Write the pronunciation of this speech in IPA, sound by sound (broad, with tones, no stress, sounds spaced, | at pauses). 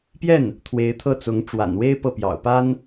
p j ɛ˥˩ n | t̪ʰ w e˧˥ ɪ̯ t̪ʰ ɤ˥˩ t͡s ʊ˧˥ ŋ ʈ͡ʂ w a̰˨˩ n w e˥ ɪ̯ p ɤ˥˩ p j ɑ̰˨˩ ʊ̯ p a˥ n